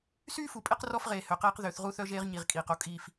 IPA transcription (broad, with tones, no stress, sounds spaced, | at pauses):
s yː˦ f u˨ pʼ e˦ q r ɔ˦ f ʁ eː˨ h ø˨ q eː˦ q ð ø˨˦ θ ʁ u˦ θ œ˦ ʒ eː˦ ʁ ɲ i˨ ʁ kʼ iː˨ q o˦ kʼ iː˦ f